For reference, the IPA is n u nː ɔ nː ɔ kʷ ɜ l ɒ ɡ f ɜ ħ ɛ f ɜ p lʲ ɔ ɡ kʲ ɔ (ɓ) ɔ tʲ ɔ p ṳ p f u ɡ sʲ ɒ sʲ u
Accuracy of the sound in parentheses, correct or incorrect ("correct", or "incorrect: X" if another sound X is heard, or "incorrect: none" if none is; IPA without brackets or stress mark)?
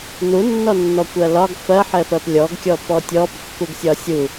incorrect: p